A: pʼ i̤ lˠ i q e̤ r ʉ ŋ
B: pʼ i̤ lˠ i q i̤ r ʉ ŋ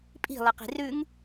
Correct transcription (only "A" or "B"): B